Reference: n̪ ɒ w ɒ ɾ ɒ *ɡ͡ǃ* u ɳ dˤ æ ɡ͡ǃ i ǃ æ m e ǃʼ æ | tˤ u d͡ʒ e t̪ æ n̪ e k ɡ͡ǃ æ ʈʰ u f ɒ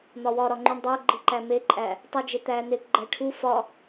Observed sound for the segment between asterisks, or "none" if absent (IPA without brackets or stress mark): ŋ͡ǃ